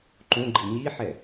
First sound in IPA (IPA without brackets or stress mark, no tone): ǃ